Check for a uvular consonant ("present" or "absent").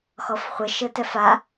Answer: present